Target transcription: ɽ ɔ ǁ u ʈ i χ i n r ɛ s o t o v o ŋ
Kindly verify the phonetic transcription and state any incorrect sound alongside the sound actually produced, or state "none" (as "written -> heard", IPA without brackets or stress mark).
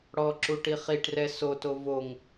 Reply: n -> ʈ